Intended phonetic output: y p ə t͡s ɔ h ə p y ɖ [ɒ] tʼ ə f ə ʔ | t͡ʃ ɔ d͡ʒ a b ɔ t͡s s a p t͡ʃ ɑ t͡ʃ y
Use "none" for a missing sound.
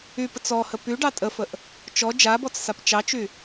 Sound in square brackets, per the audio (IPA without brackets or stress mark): ɑ